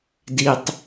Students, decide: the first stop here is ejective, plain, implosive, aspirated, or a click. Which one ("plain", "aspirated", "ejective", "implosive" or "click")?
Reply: plain